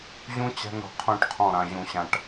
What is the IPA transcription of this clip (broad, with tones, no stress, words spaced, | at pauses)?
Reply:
ʑũ˦ t͡ɕæ̤˦nɾɔ̤˨qʰũ˦˨ʈqʰɔ̃˦˨ ɾã˨ʑũ˨ɕã˨ʈ